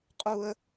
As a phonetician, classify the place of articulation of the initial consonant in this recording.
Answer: uvular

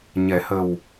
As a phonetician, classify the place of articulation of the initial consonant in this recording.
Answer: palatal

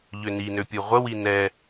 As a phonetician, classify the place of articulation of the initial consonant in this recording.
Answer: palatal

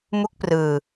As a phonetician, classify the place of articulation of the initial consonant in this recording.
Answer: labial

